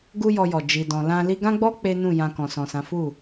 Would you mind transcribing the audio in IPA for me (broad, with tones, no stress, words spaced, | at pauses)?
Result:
ɡu˦jɔ˧jɔ˨ d͡ʒi˨dɔ̃˨ lã˧ li˧ɡã˦ɡ͡bɔ˦ k͡pe˦nũ˦˨ jã˧kɔ̃˨sɔ̃˨sã˨˦ fu˦˨